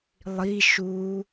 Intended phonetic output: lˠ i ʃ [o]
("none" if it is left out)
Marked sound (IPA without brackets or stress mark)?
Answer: u